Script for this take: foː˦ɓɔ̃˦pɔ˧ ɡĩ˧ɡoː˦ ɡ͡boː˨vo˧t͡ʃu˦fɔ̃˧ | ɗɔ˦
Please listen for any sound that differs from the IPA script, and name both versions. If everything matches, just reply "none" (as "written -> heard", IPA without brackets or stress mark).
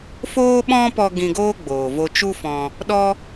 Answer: none